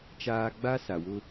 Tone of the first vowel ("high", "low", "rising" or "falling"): high